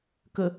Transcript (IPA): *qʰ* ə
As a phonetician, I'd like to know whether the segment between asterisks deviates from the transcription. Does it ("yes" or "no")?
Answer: yes